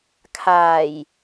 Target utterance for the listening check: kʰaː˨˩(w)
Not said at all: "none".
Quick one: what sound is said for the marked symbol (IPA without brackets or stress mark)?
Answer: j